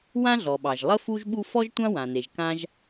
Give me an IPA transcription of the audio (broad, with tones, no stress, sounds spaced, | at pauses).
w ã˥ ɮ ɔ˩ ɓ ɑ˩ ʒ lˠ ə˥ f u˥ ʒ ɓ u˥ f ɔ˥ ʒ tʷ ã˥ w ã˩ n e˩ ʒ k ã˥ ʒ